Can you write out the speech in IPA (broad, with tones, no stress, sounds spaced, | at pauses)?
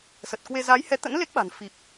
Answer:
s ə˨˩ t̚ k w e˧ z a˨˦ j h ɛ˨˦ t̪ ə̰˧˥ n l e˦˥ k̚ ɓ a̤˨˩ n f i˨˩ p̚